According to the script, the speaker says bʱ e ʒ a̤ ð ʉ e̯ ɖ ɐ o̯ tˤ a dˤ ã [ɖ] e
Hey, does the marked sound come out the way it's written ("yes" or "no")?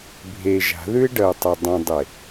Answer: no